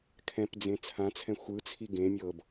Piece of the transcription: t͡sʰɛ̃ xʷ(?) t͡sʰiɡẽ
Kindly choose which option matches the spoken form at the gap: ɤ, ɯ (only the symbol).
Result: ɯ